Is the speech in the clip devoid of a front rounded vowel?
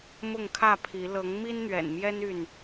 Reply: no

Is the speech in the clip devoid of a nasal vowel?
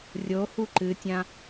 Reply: no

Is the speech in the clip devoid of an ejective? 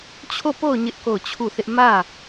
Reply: yes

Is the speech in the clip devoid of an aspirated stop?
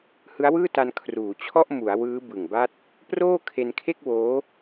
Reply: no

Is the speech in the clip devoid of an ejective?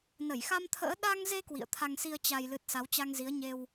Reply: yes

